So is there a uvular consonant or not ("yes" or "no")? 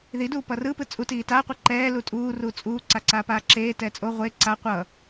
yes